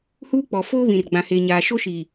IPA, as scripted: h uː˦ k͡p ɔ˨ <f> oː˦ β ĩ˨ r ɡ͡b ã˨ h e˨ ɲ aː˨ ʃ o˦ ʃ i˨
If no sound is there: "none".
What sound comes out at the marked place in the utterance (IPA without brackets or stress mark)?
f